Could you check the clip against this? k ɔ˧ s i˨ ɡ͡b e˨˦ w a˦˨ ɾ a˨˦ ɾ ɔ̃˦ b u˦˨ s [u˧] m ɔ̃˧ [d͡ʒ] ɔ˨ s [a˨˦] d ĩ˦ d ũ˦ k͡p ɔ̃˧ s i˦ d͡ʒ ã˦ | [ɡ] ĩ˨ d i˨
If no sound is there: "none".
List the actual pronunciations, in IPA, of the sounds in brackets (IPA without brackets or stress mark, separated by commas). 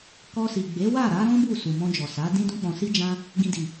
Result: u˨, d͡ʒ, a˨˦, ɡ